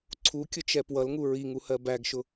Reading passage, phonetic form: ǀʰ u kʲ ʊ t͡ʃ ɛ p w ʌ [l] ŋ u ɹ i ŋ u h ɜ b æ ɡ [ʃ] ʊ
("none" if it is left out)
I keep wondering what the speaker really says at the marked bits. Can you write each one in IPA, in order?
l, ʃ

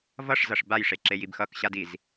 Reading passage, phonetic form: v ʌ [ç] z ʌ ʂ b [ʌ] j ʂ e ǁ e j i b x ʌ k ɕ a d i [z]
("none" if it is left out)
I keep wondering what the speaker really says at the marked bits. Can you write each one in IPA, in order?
ʂ, a, z

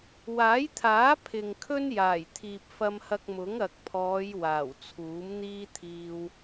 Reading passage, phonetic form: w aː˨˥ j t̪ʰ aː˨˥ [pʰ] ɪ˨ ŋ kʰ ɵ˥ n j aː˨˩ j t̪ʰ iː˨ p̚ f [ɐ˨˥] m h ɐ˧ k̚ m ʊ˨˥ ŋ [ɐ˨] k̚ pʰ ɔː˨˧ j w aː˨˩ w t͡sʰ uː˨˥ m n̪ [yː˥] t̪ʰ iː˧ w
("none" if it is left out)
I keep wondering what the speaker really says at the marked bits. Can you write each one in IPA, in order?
pʰ, ɐ˧, ɐ˨, iː˥

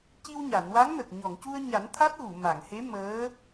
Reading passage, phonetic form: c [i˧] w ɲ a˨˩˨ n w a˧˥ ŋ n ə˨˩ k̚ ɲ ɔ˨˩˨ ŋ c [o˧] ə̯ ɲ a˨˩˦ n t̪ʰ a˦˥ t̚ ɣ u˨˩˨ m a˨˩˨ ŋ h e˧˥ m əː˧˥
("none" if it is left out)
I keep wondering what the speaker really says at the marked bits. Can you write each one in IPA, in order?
i˧, u˧

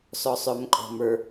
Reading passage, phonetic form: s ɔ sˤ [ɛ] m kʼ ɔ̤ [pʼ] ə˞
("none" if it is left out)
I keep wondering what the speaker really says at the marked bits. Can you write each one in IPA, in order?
œ, m

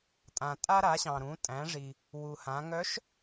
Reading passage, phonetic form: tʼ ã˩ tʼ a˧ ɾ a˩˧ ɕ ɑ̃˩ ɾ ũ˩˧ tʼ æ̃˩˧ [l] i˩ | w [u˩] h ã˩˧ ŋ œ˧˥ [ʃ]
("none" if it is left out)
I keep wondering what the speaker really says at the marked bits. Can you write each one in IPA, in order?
ʐ, u˩, ʃ

